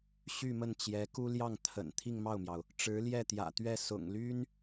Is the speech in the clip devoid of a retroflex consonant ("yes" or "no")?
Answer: no